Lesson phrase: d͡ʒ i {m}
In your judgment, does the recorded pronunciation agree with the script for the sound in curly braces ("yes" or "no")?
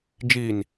no